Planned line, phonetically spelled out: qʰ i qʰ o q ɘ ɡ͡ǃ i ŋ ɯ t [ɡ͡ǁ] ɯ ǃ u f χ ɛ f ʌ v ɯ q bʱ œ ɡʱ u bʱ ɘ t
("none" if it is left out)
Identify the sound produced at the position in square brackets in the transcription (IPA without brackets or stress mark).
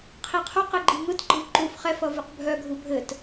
ɡ͡ǃ